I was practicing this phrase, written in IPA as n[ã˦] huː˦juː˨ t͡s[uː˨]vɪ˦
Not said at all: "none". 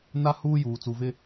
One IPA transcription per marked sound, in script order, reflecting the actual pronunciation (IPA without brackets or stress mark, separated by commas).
a˦, u˨